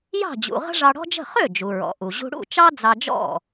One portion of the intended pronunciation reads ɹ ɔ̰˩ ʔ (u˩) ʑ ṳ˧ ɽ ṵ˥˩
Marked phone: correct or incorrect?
correct